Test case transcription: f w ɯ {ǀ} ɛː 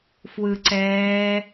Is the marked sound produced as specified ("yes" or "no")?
yes